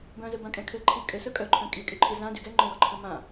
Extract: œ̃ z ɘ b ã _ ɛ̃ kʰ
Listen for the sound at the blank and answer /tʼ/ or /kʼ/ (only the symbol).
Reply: kʼ